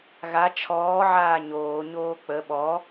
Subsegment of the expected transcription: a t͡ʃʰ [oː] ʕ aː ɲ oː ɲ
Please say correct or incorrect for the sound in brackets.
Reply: incorrect